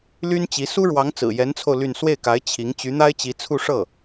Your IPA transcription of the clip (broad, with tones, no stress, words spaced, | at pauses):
ly˥nt͡ɕi˧˥ su˥ɻwɑ˧˥ŋt͡sɹ̩˨˩ jɛ˧˥nt͡sʰo˧ʊ̯ ly˥˧n swe˥˩ɪ̯ka˧˥ɪ̯ t͡ɕʰi˧˥ŋ t͡ɕy˧˥n̪a˥ɪ̯t͡ɕi˧˥t͡sʰu˥˧ ʂɤ˥˩